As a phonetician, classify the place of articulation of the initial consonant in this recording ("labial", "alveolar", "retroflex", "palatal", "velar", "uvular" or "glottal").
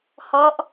glottal